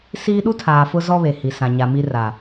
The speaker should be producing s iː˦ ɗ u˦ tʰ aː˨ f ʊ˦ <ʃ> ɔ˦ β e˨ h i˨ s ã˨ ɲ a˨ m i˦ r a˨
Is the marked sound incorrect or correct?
incorrect